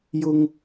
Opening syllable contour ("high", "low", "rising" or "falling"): high